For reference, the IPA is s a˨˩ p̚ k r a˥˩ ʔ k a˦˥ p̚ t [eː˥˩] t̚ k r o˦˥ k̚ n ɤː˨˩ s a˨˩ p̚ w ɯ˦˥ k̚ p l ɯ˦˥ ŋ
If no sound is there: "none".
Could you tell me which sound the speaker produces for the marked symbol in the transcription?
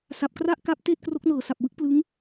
eː˥˩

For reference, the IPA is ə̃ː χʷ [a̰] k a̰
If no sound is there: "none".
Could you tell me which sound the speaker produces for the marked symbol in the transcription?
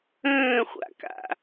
a̰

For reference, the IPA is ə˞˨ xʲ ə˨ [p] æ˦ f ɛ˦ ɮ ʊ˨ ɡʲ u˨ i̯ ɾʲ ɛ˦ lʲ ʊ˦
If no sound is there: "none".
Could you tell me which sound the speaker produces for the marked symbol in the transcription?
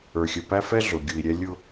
p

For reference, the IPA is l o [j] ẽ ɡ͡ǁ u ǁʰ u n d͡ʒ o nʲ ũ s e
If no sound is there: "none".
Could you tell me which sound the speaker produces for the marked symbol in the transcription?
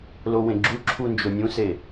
w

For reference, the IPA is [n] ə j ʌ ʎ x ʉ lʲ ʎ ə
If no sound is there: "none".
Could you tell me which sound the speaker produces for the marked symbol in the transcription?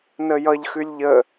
n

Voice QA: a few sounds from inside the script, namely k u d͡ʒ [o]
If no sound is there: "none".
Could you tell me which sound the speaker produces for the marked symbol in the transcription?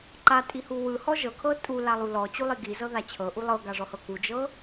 ɤ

